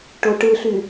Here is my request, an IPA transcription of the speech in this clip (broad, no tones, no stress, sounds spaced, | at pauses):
ʈ o ʈ ɯ ɬ y